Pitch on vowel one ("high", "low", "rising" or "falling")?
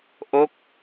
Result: falling